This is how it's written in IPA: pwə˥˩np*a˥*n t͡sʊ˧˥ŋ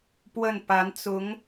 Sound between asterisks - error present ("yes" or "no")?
yes